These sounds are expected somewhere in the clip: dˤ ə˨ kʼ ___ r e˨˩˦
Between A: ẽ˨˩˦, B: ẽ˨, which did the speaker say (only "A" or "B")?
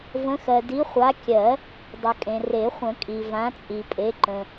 B